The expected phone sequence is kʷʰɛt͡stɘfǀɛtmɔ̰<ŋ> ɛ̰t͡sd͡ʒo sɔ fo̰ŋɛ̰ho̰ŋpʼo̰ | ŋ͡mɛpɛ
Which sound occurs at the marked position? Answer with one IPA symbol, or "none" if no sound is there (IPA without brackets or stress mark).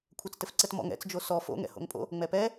ŋ